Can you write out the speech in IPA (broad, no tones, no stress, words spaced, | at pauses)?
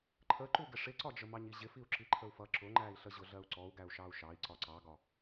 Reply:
ǃʰəǃu ɡɪʂɪǀɒd͡ʒə mɑɲiʑɪfiu̯ ǁiǃʰəu̯fʌ ǁʊŋ͡ǃæi̯ɬə ʑʊɮɜu̯ǀɔu̯ɡæu̯ ʃɑu̯ʃɑi̯ ǀɒǀɑɡɒ